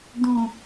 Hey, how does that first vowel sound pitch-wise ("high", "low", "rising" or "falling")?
low